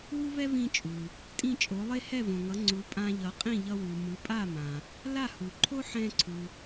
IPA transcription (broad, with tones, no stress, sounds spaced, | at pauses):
w u˥ v ɛ˥ v ĩ˧ t͡ʃʼ u˩ | tʼ ĩ˥˩ t͡ʃʼ o˩˥ lˠ e˥ h ɛ˥˩ v õ˩ ŋ ʌ˩˥ ŋ͡ǀ u˩˥ pʼ ã˧ ʎ ʌ˩˥ qʼ ĩ˥˩ ʎ ʌ˧ w u˩ m ɯ˩˥ pʼ a˥˩ m ã˩ | l a˥˩ h u˩ ǃʰ o˥ ħ ɛ̃˧ ǀʰ u˩